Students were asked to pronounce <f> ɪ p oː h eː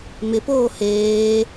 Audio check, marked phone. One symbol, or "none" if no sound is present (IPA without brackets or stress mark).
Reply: m